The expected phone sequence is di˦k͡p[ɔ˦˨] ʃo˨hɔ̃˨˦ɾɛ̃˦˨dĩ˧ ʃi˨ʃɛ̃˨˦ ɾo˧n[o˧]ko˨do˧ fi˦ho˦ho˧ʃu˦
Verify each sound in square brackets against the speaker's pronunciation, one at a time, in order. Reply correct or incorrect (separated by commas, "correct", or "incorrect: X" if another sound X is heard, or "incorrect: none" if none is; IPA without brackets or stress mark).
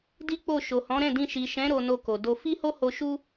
incorrect: o˦˨, correct